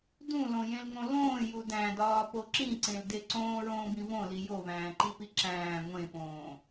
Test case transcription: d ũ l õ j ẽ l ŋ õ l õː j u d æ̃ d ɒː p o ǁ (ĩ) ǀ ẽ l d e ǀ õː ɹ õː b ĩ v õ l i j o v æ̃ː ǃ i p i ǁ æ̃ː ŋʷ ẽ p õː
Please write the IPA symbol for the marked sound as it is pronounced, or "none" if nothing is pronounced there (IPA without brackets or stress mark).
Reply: ĩ